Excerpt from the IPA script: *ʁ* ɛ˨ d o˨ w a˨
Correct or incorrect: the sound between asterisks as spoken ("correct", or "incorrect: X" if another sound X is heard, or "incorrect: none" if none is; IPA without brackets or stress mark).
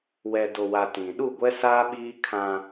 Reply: incorrect: w